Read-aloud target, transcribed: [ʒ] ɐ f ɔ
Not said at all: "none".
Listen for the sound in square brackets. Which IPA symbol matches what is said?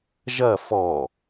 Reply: ʒ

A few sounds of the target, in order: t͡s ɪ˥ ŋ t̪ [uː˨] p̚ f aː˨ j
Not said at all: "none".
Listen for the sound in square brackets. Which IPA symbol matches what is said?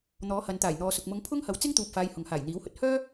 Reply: uː˨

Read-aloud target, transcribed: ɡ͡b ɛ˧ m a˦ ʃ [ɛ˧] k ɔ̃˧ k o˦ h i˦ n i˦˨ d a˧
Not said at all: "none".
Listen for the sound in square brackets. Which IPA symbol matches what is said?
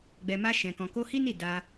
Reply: ɛ̃˧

